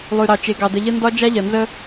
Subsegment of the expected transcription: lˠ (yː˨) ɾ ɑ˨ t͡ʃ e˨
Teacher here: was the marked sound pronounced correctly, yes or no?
no